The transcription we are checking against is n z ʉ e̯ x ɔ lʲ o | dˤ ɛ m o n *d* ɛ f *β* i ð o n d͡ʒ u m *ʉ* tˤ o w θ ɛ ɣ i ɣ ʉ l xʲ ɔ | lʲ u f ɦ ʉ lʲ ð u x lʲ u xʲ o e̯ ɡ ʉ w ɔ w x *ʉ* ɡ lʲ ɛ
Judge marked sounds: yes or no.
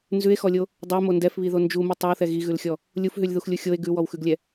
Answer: yes, yes, no, yes

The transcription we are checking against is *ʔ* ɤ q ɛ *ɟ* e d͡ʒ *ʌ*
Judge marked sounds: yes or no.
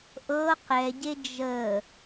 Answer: yes, yes, no

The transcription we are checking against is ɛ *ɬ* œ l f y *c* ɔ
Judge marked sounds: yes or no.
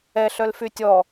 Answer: yes, no

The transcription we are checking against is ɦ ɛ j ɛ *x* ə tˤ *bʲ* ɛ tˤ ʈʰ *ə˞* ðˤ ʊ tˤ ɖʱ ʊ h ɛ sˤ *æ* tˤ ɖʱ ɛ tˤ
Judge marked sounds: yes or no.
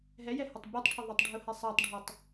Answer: no, yes, no, yes

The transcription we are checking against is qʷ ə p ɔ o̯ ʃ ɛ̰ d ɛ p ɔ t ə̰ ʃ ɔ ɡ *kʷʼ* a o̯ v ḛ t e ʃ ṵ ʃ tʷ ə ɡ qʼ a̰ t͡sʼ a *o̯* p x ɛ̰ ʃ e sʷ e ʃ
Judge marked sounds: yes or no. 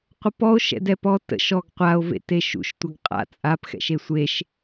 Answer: no, no

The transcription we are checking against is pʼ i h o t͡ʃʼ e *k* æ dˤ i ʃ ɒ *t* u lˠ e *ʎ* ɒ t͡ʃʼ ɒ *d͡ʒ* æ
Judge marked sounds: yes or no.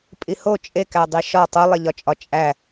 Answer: yes, no, yes, no

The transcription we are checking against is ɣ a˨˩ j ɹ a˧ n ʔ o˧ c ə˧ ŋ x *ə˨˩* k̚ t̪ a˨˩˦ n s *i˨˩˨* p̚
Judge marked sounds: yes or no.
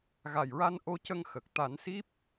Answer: yes, no

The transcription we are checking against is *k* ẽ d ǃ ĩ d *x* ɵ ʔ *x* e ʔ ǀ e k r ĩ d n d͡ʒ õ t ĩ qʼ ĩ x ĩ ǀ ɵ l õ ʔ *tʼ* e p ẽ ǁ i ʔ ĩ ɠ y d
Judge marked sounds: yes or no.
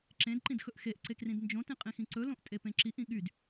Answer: no, yes, yes, yes

